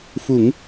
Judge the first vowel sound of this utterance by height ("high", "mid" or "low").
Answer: high